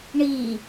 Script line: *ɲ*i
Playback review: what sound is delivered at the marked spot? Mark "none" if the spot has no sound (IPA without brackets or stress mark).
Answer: ɳ